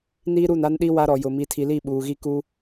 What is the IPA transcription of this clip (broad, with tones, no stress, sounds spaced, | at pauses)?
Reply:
n iː˦ ɾ u˦˨ n a˦ n ɗ i˦ w a˦ ɾ ɔ˨ j ʊ˨ m i˨ tʰ i˨ l i˦˨ ɓ uː˨ ɣ i˦ k u˦